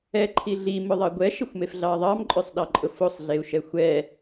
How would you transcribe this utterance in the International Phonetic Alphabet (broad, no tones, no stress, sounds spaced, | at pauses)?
ɛ ǃʰ i ɮ i m ʊ ðˤ ɑ ɡʷ ɛ ʃ e xʷ m e f ɮ ɑ ðˤ ɑ m ǃʼ ø sˤ ɗ ɑ ǃʼ ʊ f o sˤ ɮ e u̯ ʃ ɛ xʷ ɛ